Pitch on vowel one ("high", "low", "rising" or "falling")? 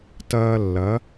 high